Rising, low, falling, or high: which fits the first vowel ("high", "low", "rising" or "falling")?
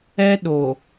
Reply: high